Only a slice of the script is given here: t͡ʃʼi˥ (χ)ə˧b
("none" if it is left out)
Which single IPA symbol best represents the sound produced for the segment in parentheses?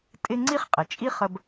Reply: χ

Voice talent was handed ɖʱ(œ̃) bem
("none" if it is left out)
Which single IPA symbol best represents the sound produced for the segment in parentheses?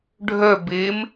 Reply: œ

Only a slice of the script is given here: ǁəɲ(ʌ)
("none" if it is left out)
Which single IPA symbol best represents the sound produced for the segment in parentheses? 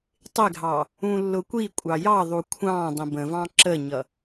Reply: ʌ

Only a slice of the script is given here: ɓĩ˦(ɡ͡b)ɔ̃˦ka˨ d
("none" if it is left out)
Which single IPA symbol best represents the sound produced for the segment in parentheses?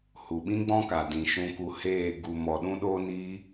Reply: ɡ͡b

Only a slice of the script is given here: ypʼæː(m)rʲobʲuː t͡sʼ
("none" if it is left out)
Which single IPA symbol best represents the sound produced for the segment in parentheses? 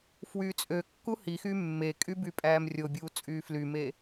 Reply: m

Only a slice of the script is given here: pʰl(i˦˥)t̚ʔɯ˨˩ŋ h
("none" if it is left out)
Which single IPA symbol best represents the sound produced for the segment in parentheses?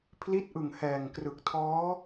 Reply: i˦˥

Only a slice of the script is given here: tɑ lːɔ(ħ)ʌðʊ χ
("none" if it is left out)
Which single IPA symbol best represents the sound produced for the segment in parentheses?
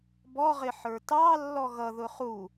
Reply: ɣ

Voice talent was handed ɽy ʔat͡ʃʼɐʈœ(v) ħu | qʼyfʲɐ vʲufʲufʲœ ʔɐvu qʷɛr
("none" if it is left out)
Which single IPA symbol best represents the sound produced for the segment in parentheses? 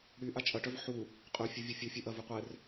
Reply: v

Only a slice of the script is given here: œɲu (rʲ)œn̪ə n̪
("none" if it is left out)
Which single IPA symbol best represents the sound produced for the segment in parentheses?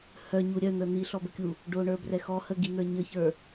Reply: ɾʲ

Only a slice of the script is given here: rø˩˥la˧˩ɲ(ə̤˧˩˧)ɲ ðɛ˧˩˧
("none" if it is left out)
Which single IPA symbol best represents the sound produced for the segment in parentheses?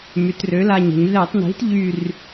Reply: ə̤˧˩˧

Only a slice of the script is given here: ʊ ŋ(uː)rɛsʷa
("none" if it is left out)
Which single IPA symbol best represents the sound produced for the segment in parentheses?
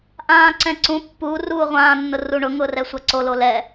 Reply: ʊː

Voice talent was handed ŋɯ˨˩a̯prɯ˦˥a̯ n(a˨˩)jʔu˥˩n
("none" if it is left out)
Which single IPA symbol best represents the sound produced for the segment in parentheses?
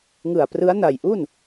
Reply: a˨˩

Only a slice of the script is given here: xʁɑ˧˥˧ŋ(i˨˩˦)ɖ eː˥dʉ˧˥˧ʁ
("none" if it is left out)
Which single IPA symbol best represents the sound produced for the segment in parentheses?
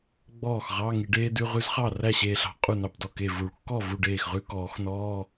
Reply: i˨˩˦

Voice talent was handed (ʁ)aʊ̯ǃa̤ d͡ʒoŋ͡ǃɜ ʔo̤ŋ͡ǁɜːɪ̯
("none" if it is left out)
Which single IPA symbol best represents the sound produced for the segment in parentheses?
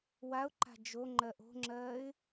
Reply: w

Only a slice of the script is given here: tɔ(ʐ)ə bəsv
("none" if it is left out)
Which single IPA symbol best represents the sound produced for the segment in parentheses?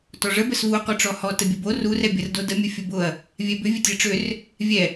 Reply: ʐ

